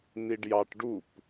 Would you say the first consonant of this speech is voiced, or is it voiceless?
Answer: voiced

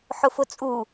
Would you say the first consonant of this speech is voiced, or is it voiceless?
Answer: voiceless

